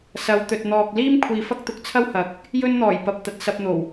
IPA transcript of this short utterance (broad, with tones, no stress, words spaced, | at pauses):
sɐ˨˧wt̪ɵ˨t̚ n̪ɔː˨k̚ liː˥mkʷʰiː˨ fɐ˥k̚t̪ʊ˨k̚t͡sʰɐ˥whɐ˨˥k̚ | jɵ˥nn̪ɔː˨˩j pɐ˨p̚t̪ɐ˨t̚sɐ˧p̚n̪o˨˩w